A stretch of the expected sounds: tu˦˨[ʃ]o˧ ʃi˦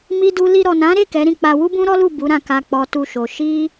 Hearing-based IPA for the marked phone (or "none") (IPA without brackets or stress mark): ʃ